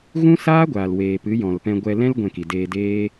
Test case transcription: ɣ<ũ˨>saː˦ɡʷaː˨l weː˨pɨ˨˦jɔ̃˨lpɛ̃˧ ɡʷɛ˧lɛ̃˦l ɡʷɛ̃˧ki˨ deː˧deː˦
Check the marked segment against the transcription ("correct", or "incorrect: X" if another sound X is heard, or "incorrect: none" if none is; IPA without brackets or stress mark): incorrect: ũ˦